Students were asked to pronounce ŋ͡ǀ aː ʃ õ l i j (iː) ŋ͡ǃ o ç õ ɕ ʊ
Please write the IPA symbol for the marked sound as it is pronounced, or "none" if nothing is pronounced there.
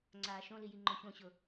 i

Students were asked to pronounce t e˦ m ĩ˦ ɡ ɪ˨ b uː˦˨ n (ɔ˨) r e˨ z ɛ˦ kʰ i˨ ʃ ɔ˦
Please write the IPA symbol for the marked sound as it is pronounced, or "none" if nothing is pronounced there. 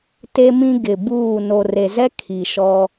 o˨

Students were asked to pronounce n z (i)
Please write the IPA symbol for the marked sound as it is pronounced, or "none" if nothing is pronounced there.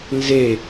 e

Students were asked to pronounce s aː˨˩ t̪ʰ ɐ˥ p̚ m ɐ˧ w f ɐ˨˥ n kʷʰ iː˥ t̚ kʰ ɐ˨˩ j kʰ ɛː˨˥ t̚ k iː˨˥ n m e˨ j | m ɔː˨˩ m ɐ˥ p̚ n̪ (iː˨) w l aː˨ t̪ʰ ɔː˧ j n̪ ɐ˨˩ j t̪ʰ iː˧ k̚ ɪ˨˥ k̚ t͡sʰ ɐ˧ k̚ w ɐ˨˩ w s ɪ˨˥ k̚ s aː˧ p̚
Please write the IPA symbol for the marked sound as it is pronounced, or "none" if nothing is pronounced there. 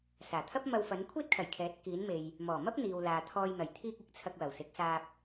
iː˨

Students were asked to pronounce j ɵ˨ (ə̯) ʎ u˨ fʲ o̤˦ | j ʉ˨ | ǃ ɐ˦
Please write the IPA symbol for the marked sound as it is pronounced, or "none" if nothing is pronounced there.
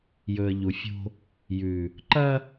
ə̯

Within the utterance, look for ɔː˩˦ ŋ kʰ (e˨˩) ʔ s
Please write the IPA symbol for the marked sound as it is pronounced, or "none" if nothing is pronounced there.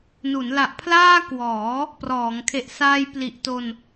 e˨˩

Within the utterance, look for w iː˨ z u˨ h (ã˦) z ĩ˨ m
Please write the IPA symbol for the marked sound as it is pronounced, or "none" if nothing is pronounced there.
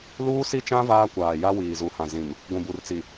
ã˨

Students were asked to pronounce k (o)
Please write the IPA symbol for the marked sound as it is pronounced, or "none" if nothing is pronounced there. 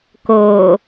oː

